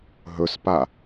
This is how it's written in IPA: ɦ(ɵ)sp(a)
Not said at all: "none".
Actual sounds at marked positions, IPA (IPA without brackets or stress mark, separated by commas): ɵ, a